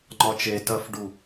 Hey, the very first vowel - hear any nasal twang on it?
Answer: no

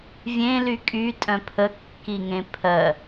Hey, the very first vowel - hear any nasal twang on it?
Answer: yes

